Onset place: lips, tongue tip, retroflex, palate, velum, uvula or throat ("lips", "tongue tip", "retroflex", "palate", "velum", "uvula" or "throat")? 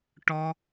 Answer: retroflex